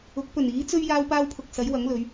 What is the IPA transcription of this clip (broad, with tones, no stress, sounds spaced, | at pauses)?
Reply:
ʊ˨˥ k̚ p ɵ˨˩ n iː˨˥ t͡s ɵ˥ ɥ j aː˥ w p aː˥ w pʰ ʊ˧ k̚ s ɐ˨˥ j w ɐ˨˥ ŋ l ɵ˨˧ ɥ